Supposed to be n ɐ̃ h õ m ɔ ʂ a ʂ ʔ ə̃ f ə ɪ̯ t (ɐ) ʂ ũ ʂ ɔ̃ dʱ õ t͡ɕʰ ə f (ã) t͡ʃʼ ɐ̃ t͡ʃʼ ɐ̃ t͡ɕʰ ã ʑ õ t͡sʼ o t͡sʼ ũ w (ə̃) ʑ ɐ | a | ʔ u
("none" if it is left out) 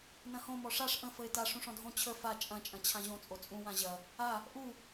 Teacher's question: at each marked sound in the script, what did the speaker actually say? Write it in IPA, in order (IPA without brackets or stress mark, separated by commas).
a, a, ã